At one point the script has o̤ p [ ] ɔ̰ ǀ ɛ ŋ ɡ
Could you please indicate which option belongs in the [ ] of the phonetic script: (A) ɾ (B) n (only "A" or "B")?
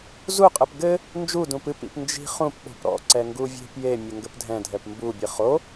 A